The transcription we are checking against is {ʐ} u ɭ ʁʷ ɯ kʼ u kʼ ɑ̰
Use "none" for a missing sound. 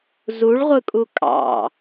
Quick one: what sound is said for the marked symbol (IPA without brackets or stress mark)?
z